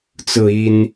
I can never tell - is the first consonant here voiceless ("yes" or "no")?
yes